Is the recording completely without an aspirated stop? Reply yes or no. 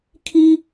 no